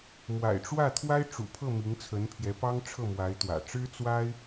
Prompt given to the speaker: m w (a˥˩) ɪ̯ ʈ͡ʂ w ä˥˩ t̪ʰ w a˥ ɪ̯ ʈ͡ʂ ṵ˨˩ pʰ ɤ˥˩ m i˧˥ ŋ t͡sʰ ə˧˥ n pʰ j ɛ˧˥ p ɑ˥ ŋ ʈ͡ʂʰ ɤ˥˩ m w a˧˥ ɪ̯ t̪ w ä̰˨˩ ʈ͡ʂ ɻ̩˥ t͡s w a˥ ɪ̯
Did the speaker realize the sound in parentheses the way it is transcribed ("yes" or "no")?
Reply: no